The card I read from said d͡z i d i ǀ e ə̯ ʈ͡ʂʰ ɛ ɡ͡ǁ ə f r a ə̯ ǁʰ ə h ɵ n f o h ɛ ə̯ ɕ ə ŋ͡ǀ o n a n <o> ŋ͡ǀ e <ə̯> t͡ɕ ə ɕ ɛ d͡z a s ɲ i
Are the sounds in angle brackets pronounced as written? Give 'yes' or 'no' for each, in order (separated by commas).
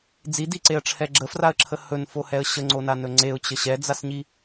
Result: no, no